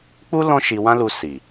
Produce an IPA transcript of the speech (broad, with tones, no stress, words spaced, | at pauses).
k͡pu˦ lɔ̃˦ʃi˧wã˦lu˧ si˨